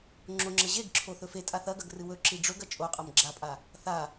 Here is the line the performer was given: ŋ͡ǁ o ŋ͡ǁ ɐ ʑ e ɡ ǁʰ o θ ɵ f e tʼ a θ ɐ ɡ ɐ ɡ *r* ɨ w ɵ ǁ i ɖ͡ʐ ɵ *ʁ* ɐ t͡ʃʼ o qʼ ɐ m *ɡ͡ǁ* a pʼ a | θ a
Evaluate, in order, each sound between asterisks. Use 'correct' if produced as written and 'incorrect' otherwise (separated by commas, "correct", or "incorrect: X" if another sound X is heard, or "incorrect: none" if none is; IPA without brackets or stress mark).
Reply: correct, incorrect: ɡ, correct